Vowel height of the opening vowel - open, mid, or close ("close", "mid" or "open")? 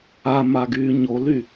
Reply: open